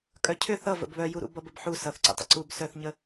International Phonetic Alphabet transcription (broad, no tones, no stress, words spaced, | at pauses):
kʼœcʰʏ θʌ və̰bβœjuɾṵ bʌbəbħu sʌθǀə̰tˤə̰ ǀub sœθɲə